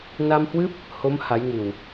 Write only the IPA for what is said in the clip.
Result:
n a˧ m h w ɨ˦˥ p̚ | h o˨˦ m h a˨˦ j ŋ ɨ˨˩ w

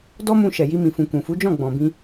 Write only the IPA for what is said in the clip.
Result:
d ɔ˦ m ũ˧ ʃ ɛ˨ j i˧ m ĩ˨ f ũ˨ k ũ˨ f u˨˦ d͡ʒ ɔ̃˦˨ ɡ͡b ɔ̃˨ b ĩ˧

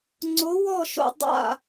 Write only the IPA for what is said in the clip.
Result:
ŋ͡ǀ o˧˥ w ɔ˥˧ ʃ o̰˥˧ dˤ a̰˥˧

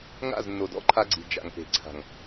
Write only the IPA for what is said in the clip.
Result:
ŋ a̰˦˨ z nː o˨ d ɔ̰˦ ǃʰ a˧ ɡ͡ǀ i̤˨ d͡ʒ a̰˨ ŋ p e̤˨ ǀʰ a̤˨ ŋ

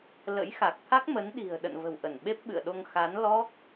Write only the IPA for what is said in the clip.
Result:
l ə̰˧˥ j x a˨˩ k̚ t̪ʰ a˦˥ k̚ m ə˨˦ n ɗ i̤˨˩ ə̯ ɗ ə̰˧˨ n v ə̤˨˩ w ʔ ə˧˩ n ɓ e˦˥ p̚ ɓ ɨ̰˧˨ ə̯ ɗ o˧ ŋ x a˨˦ n l ɔ˦˥ k̚

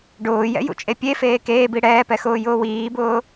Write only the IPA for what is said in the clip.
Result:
ɖ ʊː j ɛ̰ j ṵ t͡ʃʼ e pʲ e f eː k eː b i ɽ ɛː p ɛ x ʊː j ʊː w iː b ʊː

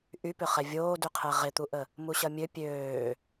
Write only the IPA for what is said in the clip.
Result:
ʔ y p ʏ χ ɛ vʲ oː d y qʰ ɛ ʁ ɪ t̪ u ʔ ə | m u ɕ ɐ mʲ ø pʲ øː

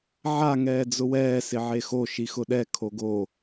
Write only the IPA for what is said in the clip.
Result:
ʕ a ŋ ɛː d͡z ʊ w ɛː s ɪ ʕ e x o ʃ i x ʊ ɗ ɛ kʰ o ɡ o

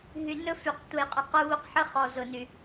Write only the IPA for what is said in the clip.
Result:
ɦ y˨ n ɵ˦ f y˨ q tʷ ə˨ j qʼ ʊ˨ q u˦ β u˦ q ħ ə˦ χ ɔ˨ z ʊ˨ n y˨

